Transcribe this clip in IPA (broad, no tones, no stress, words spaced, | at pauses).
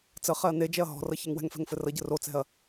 t͡sə χɛɐ̯ned͡ʒɛɐ̯ ɦɔ̤rʌ çɛŋwɛ̤ŋfɛ̤ŋ fɘrʌɟə rot͡sɛ̤ɐ̯